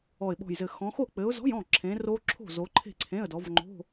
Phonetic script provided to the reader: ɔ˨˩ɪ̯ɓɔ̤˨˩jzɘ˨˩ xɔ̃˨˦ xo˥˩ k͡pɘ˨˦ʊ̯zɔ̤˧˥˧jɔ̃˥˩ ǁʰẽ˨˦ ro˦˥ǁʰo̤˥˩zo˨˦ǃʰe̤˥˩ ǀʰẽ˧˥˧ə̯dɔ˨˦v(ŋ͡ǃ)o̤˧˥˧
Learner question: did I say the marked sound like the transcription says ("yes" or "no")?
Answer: yes